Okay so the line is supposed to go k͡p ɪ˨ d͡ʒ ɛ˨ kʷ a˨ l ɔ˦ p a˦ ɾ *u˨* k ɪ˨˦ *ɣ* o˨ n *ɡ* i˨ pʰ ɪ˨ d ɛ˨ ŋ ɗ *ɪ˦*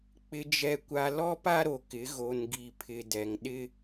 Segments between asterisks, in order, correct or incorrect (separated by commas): incorrect, correct, correct, correct